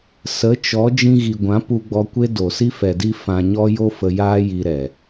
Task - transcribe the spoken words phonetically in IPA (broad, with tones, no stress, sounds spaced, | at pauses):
s ə˨˦ t͡ʃ ɔ˨˦ d͡ʒ ĩ˧ ɣ i˨ ɡʷ ã˨˦ p u˧ ɡ͡b ɔ˧ kʷ e˦ d o˨ s i˦ f ɛ˨ d i˧ f ã˧ ɲ ɔ˦ j o˦ f ə˧ j aː˦ j i˧ ɾ ɛ˨